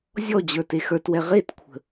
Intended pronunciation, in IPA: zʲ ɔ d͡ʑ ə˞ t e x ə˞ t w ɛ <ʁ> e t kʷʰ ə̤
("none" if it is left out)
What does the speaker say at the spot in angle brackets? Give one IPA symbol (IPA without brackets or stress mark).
ʁ